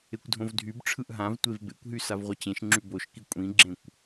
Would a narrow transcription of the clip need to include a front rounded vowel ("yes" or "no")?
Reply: yes